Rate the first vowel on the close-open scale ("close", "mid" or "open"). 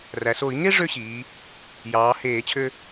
open